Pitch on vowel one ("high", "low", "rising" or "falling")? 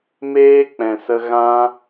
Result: high